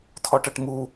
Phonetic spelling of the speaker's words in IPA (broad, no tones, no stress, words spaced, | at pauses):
tʰɔʈɐʈmu